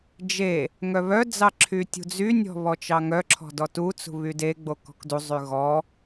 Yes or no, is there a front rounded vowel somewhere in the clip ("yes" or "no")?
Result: yes